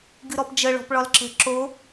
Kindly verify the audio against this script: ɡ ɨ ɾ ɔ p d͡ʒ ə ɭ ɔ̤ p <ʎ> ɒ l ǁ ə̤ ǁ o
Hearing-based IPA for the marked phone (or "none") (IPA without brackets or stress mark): ɭ